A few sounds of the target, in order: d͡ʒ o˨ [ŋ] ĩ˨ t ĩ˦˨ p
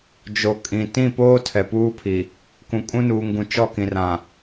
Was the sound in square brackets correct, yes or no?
no